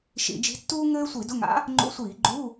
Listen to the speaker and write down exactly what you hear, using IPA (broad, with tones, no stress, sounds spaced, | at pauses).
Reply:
ʃ ḭ˧˩˧ d͡ʒ i̤˧˥ tː uː˥ ŋ ɘː˥ sʷ i˧˩˧ d ʊ˧˥˧ ŋ a̰˧˥ | ŋ͡ǃ ṵ˧˥˧ sʷ iː˧˩˧ ɡ͡ǃ u˧˥˧